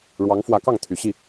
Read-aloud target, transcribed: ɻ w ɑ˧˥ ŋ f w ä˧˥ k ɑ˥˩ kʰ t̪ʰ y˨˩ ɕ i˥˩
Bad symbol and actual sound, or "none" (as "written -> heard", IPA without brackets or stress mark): kʰ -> ŋ